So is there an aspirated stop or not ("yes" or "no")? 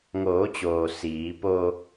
no